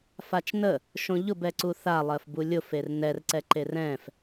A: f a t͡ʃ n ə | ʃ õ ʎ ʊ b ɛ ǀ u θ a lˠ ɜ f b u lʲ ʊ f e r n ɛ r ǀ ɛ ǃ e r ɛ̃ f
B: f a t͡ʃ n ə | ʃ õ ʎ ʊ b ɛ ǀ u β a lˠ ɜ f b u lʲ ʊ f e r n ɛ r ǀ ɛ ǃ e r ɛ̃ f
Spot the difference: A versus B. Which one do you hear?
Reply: A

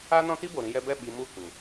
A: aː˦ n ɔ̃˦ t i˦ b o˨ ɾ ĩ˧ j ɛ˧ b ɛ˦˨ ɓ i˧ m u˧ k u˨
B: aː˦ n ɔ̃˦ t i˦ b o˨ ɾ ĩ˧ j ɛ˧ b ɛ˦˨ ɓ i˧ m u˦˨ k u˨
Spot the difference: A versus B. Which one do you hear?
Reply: B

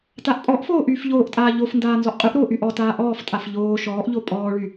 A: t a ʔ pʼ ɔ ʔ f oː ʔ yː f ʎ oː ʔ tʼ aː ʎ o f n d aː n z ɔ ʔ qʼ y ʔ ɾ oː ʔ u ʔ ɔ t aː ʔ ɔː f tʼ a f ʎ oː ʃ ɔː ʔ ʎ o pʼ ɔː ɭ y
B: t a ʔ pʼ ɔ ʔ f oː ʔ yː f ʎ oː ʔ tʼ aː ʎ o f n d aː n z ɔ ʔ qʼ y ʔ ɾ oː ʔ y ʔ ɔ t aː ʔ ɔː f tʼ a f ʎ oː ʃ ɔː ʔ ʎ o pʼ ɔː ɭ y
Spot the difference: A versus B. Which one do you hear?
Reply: B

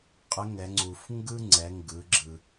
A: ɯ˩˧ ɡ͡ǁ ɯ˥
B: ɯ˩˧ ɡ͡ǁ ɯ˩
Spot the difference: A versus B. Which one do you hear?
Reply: B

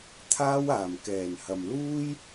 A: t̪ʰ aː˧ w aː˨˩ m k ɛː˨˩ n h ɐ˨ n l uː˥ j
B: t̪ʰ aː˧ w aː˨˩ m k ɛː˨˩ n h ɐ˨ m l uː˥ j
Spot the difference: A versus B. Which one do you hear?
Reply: B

